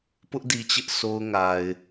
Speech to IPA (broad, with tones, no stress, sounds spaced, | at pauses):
p ʊ˦ ʔ d i˨ t͡ɕ ɪ˦ ʔ s o˦ ʊ̯ ŋ a˨ ɪ̯